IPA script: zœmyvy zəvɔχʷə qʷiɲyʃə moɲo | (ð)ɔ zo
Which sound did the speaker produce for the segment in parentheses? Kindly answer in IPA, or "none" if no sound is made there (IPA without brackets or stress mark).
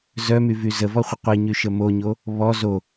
β